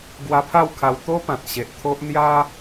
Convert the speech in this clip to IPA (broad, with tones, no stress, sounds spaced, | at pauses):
ɡ w a˧ pʰ a˥˧ w kʰ a˧ w t̪ o˦ p ã˨ t̚ ɕ e˨ ʔ t̪ʰ o˦ ʔ n̪ j a˦